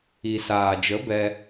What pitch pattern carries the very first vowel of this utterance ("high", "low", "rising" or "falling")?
low